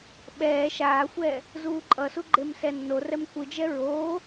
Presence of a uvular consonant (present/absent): absent